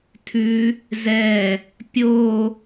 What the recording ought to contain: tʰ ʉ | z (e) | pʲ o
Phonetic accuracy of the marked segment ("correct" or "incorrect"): incorrect